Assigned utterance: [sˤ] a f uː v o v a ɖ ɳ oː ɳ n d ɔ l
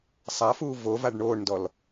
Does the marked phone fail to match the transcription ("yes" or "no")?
no